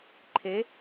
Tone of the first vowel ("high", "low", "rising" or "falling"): rising